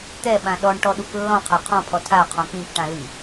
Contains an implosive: yes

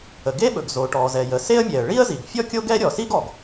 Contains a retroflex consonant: yes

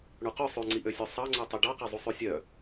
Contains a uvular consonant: yes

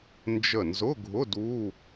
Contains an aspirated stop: no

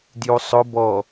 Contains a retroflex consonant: no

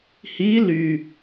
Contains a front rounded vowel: yes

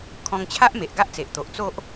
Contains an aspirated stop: yes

